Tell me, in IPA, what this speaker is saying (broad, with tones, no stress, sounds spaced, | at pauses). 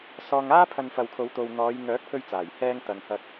s ɔː˧ ŋ aː˥ pʰ ɐ˧ n f ɐ˨ w kʰ o˨˧ w t̪ o˨ w n̪ ɔː˨˧ j ŋ œː˨˥ k̚ pʰ ɵ˧ ɥ t͡s aː˨˩ j h ɛː˧ ŋ t̪ ɐ˨ ŋ h ɐ˧ k̚